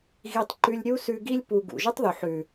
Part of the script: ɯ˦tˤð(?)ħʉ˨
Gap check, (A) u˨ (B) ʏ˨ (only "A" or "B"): A